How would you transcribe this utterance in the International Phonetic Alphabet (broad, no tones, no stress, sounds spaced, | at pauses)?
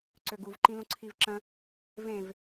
ǀ ø ɡ u v ǃ ĩ l ũ ǀʰ i v ǁ ə̃ | v ẽ v